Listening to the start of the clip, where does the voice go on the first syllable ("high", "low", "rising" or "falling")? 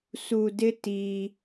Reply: high